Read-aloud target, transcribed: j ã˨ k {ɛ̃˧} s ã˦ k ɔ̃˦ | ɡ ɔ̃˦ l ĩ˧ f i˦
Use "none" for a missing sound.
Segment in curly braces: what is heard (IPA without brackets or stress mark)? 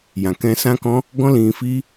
ɛ̃˧